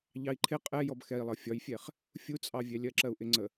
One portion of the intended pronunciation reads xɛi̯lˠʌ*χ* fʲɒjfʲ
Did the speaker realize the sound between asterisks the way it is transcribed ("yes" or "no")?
no